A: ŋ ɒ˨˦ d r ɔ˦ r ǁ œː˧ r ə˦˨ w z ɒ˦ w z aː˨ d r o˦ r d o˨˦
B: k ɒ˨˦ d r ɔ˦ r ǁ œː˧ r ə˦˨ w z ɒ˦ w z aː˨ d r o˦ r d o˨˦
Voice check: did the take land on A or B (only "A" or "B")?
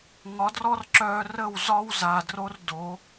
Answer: A